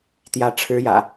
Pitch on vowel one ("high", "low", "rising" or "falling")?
rising